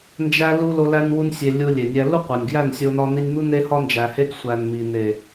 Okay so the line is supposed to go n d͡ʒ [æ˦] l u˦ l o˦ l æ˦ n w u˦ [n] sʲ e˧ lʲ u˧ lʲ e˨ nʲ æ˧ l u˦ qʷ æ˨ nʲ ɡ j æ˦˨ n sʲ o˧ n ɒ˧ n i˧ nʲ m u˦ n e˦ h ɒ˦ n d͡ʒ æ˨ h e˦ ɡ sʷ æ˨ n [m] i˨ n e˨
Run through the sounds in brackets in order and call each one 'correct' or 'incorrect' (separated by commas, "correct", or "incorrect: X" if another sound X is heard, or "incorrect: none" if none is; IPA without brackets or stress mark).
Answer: correct, correct, correct